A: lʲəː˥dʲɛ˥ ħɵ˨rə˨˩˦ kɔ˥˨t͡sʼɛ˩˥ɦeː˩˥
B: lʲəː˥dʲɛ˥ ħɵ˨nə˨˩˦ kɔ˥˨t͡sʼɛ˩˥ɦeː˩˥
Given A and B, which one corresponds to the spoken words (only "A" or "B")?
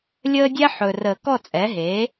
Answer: A